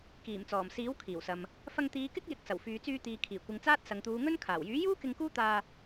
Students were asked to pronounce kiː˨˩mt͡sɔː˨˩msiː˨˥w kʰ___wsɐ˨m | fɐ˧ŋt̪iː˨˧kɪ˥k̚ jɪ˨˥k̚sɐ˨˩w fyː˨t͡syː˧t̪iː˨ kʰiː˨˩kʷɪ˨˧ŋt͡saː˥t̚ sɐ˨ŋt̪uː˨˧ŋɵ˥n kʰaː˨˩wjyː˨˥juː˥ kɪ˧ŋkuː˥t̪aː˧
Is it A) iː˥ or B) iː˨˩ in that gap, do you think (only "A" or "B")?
B